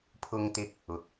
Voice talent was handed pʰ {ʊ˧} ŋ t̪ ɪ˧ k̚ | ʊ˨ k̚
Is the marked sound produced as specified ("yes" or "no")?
yes